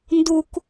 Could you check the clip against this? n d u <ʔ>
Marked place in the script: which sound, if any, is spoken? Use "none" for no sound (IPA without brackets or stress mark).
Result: k